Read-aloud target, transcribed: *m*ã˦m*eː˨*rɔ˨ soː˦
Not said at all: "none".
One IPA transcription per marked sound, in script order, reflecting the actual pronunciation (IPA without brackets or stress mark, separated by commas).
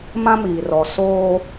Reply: m, iː˨